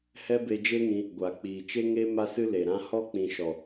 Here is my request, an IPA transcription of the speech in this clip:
h ɛ˦ b e˧ d͡ʒ e˦ ŋ ĩ˧ | ɡʷ a˨ k͡p iː˨ t͡ʃ e˦ ŋ e˦ m a˦ s ɨ˦ l e˨ ɾ ã˦ h ɔ˦ k͡p ĩ˨ ʃ ɔ˨

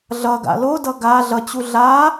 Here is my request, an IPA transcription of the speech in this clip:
ɮ ʌ ɡ a̰ l o d ʌ ɡ a ɮ ʌ t͡ɕ u ɮ a

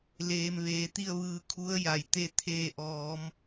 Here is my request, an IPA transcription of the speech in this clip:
l eː˧ m ʋ eː˩˧ t̪ i˥˨ ə̯ ʋ ɯː˧ kʰ u˧˥ ə̯ j a˩ j t̪ e˥˨ t̪ʰ eː˧˩ ʔ ɔː˩˧ m

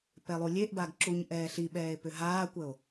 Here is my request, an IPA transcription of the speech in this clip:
p ɛ lˠ u lʲ e ʔ b a ɡ ǁ u ɲ ʔ ɛː ɬ i ɓ ɛː e̯ p ʏ ɦ aː kʷ ə o̯

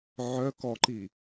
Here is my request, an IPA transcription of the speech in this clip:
ʕ œ k ɔ ǃ i

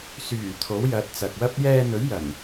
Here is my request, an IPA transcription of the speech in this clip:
s yː˨˩ t̪ʰ o˨˥ w j ɐ˨˥ t̚ t͡s ɐ˨ k̚ w ɐ˥ p̚ j ɛː˧ n̪ ɵ˨˥ ɥ j ɐ˨˩ n

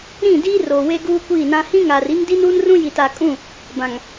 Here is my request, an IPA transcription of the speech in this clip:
ɾ ĩ˦˨ d iː˦ r oː˨ w e˦ ɡ uː˦ kʷ iː˦˨ n ã˦ h ĩ˦ ŋ aː˨ r i˦ ŋ d i˦ n uː˦ n r ũ˦ j i˨ t a˨ kʼ ũ˦˨ | b ã˨ ŋ

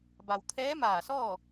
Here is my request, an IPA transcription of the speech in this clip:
b a˩ w t̪ʰ ɛː˧˥ m aː˧˩ s ɔː˥˨

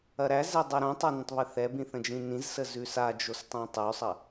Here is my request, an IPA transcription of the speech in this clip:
ɐ ɾ æ z ɛ dˤ æ ɾ õ tˤ a n ɐ̃ tˤ β ɘ θ ɛ b ĩ θ ə̃ d͡ʒ ĩ n ĩ z s ə z ʉ s a d͡ʒ o s tˤ õ tˤ ʉ sˤ ɐ

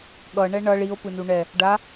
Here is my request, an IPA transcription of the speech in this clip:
ɠ ʌ ɳ ɛ ɳ ʌ ɭ i o̯ p ɯ n u ɳ ɛ | ɖ a

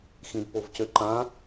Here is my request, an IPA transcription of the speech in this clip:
x ĩ d p o v c ø ǃ ã

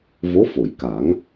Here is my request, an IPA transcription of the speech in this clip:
v o˧˥ f o˨˩˨ j k a˨˩˦ ŋ

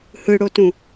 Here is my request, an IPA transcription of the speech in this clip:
h ɯ ɽ o t ũ

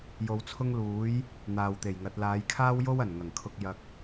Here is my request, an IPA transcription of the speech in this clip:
j o˨˧ w t͡sʰ ʊ˥ ŋ l uː˨˥ j | n̪ aː˨ w t̪ e˨˩ j ŋ ɐ˨˥ t̚ l aː˨˧ j kʰ aː˥ w j o˥ w ɐ˨˩ n ŋ ɐ˨˩ ŋ kʰ ʊ˧ k̚ j ɐ˧ k̚

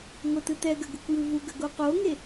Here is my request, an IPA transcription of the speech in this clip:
ŋʷ ə t ɯ t ɛ ɡ ə ɡ u kʷ j ɯ v u ɡ ə ɡ o q o ŋ e

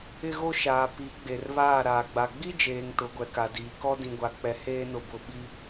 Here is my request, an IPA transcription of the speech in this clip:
ɪ˦ ɣ o˦ ʃ aː˨ p i˨˦ ɡ͡b e˨ r β aː˦˨ ɾ aː˨ ɡ͡b a˨ ɡ͡b i˦ d͡ʒ eː˨ ŋ t ʊ˨˦ ɡʷ ɛ˨ k a˨ d iː˨ k ɔ˦ d ĩ˨ ɡʷ a˨ k͡p ɛ˨ h eː˦ n ʊ˨ b ʊ˨ ɓ i˦

